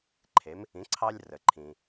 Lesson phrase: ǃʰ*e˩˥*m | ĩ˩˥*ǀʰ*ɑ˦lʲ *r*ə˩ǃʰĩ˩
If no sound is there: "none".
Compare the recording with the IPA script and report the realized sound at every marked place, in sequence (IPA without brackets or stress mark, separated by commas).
e˩˥, ǀʰ, r